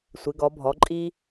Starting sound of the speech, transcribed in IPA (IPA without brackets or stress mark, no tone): sʷ